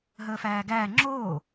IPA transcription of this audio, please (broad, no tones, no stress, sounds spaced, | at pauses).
ɦ əː f æː ɡ æː ŋ͡ǁ oː